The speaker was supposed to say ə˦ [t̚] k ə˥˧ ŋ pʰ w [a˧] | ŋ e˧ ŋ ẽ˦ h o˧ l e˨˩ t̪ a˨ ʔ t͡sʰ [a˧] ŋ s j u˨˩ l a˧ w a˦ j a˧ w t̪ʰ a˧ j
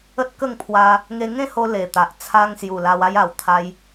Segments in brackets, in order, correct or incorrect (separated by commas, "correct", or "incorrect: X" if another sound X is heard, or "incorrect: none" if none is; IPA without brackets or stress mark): correct, correct, correct